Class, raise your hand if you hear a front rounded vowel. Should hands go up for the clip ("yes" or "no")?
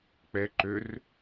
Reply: yes